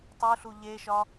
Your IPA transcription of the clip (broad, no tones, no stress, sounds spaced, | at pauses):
tˤ u ɬ u ʎ e ʃ ɒ